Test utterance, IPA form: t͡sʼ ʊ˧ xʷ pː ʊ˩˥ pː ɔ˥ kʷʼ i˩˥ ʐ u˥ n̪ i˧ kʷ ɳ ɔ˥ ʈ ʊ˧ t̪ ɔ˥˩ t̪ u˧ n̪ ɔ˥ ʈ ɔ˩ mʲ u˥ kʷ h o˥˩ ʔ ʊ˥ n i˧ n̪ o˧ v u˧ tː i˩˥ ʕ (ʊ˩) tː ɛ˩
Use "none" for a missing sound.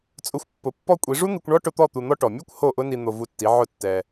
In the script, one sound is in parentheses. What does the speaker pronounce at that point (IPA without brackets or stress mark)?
ʊ˥˩